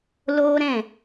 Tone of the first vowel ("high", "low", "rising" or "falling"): high